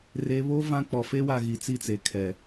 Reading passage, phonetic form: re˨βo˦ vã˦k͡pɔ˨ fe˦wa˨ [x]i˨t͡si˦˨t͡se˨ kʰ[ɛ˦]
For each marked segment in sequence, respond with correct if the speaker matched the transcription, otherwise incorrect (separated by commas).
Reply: incorrect, incorrect